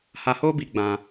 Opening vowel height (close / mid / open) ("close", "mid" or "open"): open